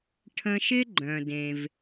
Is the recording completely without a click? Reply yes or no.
no